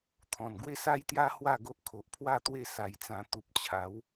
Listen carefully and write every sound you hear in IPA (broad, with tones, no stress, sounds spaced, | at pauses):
t̪ʰ ɔ̃˨˩ n ɡ w e˥˧ s a˦ j t̪ j a˦ h w a˥˧ ɡ o˦ ʔ kʰ o˨ ʔ pʰ w a˥˧ t̪ w e˥˧ s a˧ j t͡s ã˧ t̪ u˨ p̚ t͡ɕʰ a˨˦ w